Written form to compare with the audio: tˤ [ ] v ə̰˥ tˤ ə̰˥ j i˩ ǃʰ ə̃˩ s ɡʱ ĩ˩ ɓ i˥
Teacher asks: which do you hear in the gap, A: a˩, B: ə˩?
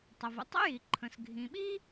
B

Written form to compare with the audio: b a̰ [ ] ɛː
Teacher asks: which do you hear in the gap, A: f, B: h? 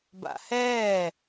B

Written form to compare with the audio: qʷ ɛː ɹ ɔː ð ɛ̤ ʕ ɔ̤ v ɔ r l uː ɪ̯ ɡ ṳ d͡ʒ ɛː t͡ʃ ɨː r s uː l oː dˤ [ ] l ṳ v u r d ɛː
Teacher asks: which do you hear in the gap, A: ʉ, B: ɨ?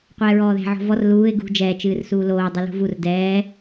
B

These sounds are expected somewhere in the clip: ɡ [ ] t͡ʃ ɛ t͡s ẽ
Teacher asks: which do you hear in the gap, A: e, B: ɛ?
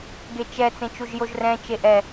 A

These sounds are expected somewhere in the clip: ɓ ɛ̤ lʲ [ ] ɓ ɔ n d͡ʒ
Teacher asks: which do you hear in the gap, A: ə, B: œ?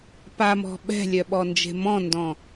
B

